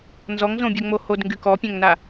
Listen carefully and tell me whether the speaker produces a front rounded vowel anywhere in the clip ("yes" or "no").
yes